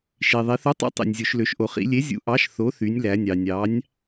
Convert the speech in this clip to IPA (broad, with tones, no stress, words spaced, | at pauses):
ʃi˩ ðˤi˩˧θu˨˥tˤṵ˨˥ tˤḭ˩nʲ zʲo˩˧ʃlø˩˧ʃʔo˩˧ χḭ˩˧lʲe˨˥ zʲṵ˨˥ʔɑ˨˥ʃ θo˨˥ θy˩˧nʲ læ˩˧nʲɑ˩ nʲɑ˨˥nʲ